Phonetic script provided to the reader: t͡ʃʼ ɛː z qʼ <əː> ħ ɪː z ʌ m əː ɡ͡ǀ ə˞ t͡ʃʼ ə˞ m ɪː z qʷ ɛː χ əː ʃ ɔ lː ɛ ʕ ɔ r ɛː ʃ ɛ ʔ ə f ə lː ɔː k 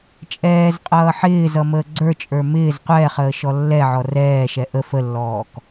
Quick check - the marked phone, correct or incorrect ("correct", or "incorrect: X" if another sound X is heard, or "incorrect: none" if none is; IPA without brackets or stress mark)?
incorrect: ʌː